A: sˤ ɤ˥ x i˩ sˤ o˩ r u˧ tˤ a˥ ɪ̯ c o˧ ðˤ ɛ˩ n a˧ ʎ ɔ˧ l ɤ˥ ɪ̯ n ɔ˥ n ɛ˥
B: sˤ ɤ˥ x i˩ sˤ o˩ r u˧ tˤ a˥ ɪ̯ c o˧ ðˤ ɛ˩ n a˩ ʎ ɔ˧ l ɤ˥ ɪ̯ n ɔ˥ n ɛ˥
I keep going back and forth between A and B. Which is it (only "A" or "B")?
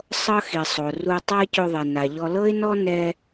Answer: B